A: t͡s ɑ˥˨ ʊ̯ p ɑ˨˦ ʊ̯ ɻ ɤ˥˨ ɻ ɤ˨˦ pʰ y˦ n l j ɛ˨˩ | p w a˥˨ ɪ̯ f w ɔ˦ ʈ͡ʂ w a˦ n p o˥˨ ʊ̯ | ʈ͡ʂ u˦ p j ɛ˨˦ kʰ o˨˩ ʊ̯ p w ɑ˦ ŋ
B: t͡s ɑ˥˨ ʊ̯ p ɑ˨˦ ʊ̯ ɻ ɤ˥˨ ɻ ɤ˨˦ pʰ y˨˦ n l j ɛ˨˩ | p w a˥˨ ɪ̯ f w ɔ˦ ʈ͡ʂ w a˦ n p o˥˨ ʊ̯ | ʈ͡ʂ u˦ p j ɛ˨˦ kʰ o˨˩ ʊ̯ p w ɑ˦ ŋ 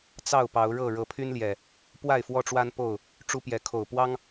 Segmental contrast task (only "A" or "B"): A